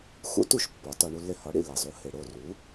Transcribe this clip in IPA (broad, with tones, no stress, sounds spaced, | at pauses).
x ṵ˥ t u˥˩ ʃ pː ɒ˩˥ t ɒ˧ ɳ u˧ lː e˧ h ɒ˩˥ ɽ ḭ˩ lː e˩ zˤ u˩˥ h e˩ ɽ o˥˩ r u˩˥